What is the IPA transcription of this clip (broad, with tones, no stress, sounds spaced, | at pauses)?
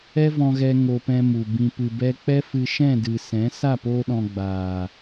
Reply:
ɛ˦ v ɔ̃˧ ɣ ɛ˧ ŋ o˧ p ɛ̃˧ m u˨ b ĩ˨ p ɨ˨ b ɛ˧ k͡p ɛ˦ f ɨ˧ ʃ ɛ̃˦˨ d ɨ˨ s ɛ̃˨˦ s a˦˨ p oː˧ ɗ ɔ̃˨ ɡ͡b aː˨